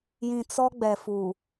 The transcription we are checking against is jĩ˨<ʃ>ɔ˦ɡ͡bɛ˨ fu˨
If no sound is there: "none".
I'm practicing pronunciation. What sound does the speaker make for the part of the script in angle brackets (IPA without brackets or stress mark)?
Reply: t͡s